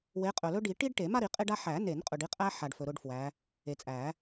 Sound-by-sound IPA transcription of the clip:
we˨˦qʼɵ˨lɵ˥ ɖi˨˩˦ ʈi˥ɖʈe˨˩˦ ma˥˧ɾi˨˩˦ qʼe˥ɖa˥ ħæ˨˩˦ne˨˩˦nqʼɵ˨ɖ i˥˧qʼæ˥ ħa˨ɖ fɵ˨ɾʊ˥˧ɖfwæ˨˦ | e˨t͡sʼæ˨˩˦

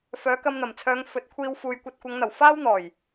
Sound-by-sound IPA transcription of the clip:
fœː˨˥kɐ˧mn̪ɐ˨˩mt͡sʰœː˨˧ŋ fɵ˨˥t̚kʷʰiː˧w fuː˨jkʷɐ˧t̚kʷɐ˨˧ŋn̪ɐ˨˩w faː˥wn̪ɔː˨˩j

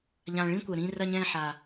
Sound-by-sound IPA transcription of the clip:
ʎã˨˩ɭĩ˥˧kʷɐ˨˩ ɾĩ˥˧ rɐ˥˧ɲɛ̃ː˥˧ħa˨˩

